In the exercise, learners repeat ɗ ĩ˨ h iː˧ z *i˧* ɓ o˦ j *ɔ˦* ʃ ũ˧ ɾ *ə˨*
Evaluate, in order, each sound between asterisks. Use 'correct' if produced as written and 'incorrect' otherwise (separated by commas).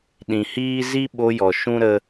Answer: correct, incorrect, incorrect